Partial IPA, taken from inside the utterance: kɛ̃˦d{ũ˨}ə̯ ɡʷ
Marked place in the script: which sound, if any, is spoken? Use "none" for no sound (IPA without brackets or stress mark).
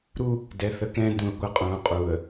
ũ˨